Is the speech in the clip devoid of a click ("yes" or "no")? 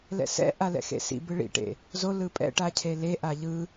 yes